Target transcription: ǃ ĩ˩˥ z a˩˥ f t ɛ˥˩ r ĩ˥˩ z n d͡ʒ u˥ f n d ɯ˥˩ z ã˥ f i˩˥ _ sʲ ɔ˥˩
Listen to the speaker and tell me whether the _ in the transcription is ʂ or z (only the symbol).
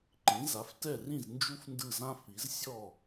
z